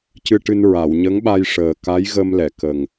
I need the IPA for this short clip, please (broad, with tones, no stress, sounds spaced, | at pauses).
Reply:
c ɨ˧ ʈ ɨ˧ n ɹ a˨˩˨ w ɲ ə˧˥ ŋ ɓ a˧ j ʂ əː˨˩ k a˧˥ j ɣ ə˧ m l ɛ˨˩˨ k ə˨˩ ŋ